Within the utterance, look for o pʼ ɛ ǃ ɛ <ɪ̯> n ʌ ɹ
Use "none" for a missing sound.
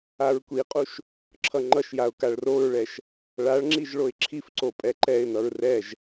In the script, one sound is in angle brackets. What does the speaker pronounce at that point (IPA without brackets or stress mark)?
ɪ̯